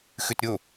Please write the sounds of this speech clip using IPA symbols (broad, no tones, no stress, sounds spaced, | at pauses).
x ʉ t ɾʲ o